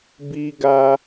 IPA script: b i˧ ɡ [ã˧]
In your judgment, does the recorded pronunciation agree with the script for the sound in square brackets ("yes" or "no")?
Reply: no